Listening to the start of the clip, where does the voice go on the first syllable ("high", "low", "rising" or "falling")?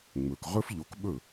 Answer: low